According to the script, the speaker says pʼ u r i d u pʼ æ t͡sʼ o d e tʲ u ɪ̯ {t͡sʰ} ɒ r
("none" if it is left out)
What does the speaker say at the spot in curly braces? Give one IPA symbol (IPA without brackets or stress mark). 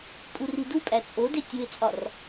t͡sʼ